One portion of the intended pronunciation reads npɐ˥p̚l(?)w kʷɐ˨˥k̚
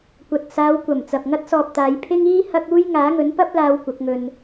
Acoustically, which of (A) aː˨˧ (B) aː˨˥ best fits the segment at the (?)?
A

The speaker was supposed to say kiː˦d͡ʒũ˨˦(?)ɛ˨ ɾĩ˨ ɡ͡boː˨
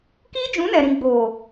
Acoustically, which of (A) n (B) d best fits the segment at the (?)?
A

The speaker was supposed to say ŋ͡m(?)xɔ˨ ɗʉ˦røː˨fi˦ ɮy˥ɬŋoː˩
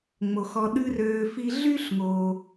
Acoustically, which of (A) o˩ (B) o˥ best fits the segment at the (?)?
A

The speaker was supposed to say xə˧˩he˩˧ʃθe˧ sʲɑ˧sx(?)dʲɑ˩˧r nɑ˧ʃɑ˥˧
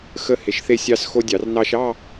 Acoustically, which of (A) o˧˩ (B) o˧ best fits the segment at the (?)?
B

